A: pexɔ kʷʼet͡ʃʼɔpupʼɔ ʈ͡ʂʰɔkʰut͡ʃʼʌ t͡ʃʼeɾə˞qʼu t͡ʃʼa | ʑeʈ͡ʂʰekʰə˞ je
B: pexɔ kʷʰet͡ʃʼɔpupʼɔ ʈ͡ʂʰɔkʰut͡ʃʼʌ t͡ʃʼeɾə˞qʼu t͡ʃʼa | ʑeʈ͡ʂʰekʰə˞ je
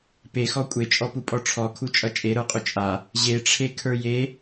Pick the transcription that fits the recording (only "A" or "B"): A